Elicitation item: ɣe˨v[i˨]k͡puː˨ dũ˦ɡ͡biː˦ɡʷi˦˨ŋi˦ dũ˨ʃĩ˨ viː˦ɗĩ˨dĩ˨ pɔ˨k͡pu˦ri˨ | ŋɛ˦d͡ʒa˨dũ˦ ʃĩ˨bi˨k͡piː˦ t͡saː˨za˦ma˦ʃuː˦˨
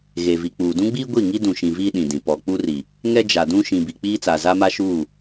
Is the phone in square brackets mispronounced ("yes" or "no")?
no